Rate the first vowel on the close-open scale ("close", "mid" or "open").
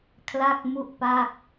open